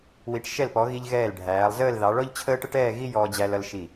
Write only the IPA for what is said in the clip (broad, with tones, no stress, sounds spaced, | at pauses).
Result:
w i˩˧ ʈ ʃ ɛ˧˩ l p ɔ˩˧ ɣ i˧ ʎ ɣ ɛː˧˩ l ɖʱ æː˩˧ lˠ z əː˥˧ l ð ɑ˩˧ ɭ ɔ˥ ʎ t͡ɕʰ əː˥ ʈ ə˥ ʈ ɛː˥˧ ɣ i˥ j ɔː˧ d͡ʑ æ˧ l ʌ˧ l ʃ i˧˩